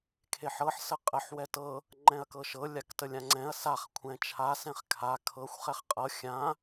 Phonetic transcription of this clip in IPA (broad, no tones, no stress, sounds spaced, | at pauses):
kʰ e ħ ɤ ħ s ə qʼ ə ħ w ɛ t ɤ | ŋ͡ǃ ɛ̃ ɐ̯ k ɤ ʃ ɤ lʲ a k t ə lʲ ã ŋ͡ǀ ɛ̃ ɐ̯ s a χ kʷʰ ɛ̃ t͡ʃʰ a s ɛ̃ χ kʰ a kʰ ɤ xʷ χ ɛ χ qʼ ɤ xʲ ã